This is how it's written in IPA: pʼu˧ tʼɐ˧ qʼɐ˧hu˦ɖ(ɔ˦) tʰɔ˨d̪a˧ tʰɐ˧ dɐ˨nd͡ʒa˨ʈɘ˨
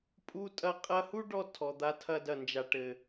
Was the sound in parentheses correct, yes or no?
no